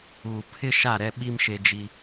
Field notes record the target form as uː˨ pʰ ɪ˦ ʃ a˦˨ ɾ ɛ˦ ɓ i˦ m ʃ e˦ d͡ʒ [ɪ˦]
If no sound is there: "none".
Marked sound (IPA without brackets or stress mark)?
i˦